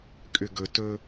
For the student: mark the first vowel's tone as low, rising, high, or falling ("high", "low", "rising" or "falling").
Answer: low